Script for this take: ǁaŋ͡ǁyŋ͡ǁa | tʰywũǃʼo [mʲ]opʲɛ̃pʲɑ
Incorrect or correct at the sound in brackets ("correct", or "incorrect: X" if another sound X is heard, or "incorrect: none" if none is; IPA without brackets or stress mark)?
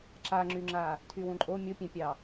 correct